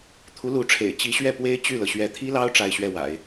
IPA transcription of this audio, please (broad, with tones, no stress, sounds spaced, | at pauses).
t̪ʰ u˧˥ l u˧˥ ʈ͡ʂʰ ḛ˨˩ ɪ̯ t͡ɕ i˧˥ ɕ ɥ ɛ˥˩ p w e˥ ɪ̯ t͡ɕ y˥˩ l ɤ˩ ɕ ɥ ɛ˧˥ t̪ʰ i˥ l ɑ˥ ʊ̯ ʈ͡ʂ a˥˧ ɪ̯ ɕ ɥ ɛ˥˩ w a̰˨˩˦ ɪ̯